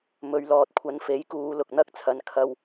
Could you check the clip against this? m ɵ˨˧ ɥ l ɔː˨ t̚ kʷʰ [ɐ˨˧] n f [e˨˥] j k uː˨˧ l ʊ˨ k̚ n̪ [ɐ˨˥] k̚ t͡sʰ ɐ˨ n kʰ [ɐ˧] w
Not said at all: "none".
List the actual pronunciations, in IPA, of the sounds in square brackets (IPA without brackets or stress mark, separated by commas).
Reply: ɐ˨˧, e˨˥, ɐ˥, ɐ˧